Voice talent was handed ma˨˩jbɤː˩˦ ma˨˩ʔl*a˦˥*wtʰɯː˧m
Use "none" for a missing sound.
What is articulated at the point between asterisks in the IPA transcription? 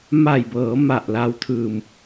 a˧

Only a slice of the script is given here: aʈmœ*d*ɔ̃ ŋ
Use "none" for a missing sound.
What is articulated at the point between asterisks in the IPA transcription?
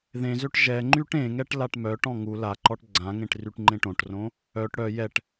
ʈ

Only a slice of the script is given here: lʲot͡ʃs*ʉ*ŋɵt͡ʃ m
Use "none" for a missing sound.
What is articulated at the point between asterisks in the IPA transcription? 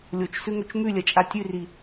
ʉ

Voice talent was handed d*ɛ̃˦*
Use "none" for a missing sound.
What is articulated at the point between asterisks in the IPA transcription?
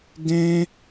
ɛ̃˦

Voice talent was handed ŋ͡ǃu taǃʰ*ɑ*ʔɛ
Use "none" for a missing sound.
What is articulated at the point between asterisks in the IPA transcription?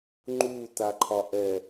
ɒ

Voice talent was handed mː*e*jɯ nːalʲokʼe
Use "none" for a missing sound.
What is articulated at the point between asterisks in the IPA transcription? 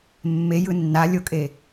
e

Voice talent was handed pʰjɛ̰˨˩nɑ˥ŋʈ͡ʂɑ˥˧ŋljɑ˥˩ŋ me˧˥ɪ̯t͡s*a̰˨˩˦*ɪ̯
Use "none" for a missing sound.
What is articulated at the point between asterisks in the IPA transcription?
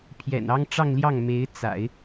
a̰˨˩˦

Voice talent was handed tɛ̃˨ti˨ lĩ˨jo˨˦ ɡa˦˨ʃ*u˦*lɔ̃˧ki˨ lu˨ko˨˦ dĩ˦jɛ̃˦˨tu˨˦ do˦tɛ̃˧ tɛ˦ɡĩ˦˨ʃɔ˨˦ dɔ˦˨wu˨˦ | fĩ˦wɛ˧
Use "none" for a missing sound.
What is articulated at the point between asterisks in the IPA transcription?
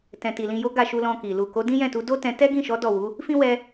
u˧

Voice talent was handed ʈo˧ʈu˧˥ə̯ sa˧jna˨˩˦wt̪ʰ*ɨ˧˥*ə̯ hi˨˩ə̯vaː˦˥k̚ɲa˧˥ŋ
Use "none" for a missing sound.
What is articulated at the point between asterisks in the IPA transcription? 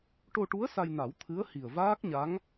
ɨ˧˥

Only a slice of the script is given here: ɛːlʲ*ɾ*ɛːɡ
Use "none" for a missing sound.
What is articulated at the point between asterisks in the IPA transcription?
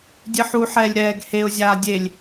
ɾ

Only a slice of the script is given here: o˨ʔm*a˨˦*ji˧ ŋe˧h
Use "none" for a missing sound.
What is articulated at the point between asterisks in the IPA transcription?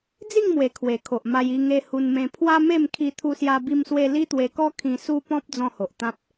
a˧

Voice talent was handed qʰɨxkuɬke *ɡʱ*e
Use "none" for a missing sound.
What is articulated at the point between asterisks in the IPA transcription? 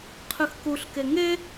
ŋ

